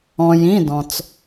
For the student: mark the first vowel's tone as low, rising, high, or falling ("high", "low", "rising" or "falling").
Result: low